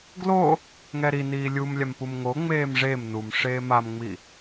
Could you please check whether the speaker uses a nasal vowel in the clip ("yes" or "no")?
no